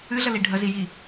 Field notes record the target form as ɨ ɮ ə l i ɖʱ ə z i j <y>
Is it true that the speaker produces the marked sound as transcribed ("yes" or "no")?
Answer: no